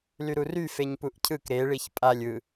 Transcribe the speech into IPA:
l y ɾ u r y f e ɲ p u ʔ cʰ ɯ k ɾ e ɭ i ç pʼ a lʲ ɯ

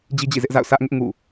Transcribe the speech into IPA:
d͡ʑ i˦ d͡ʑ ḭ˦˨ z ɪ˦ ʔ z a̰˦˨ ʊ̯ sʰ ä˦ ʔ ŋ ɪ˦ ʔ ŋ ṵ˦˨

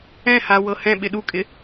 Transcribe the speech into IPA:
ɛ̃ h a w ɤ h ɛ̃ ɓ ɪ ɗ u kʼ ɪ

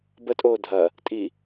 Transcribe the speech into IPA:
b ə tʼ oː dʱ ɐ | tʼ i

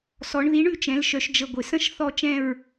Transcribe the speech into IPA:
s ɔ˩˧ ɳ ð i˩˥ ɳ ʉ˥˨ t͡ʃ ɛ̃˩˧ l ʃ œ˩˧ ʃ d͡ʒ ə˨˩ ɡʷ ɪ˩˧ s ə̃˥ ʃ θ ɔ˥˨ t͡ʃ ɛ̃˥˨ ɹ

